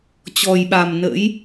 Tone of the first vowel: low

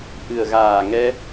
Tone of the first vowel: low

